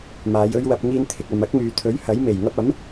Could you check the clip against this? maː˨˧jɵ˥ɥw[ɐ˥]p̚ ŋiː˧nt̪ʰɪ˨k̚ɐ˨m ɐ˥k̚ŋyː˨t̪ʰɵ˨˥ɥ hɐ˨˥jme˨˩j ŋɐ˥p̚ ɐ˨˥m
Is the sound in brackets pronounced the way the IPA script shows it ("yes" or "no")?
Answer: no